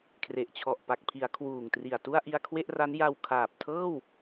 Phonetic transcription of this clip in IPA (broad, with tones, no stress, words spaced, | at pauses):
kʰre˨˩ʔt͡ɕʰɔ˨˩ʔ pa˨˩k̚pʰi˩˦a̯ kʰwuː˨˩ŋtri˨˩a̯ tu˥˩a̯ʔi˧a̯kʰwe˥˩ʔra˦˥n ja˧wkʰaː˨˩p̚ tʰɤː˥˩w